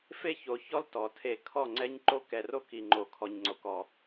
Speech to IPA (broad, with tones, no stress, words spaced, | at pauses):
fe˦ço˨çɔ˦l tɔ˨tʰe˦˨ kʰɔ˦˨ŋ͡ǀɛ˦ɲǃo˦ kɛ˨ro˦k i˨ŋ͡ǃo˨ kʰɔ˨ɲŋ͡ǀo˨kɔ˨